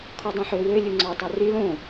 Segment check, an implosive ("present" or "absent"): absent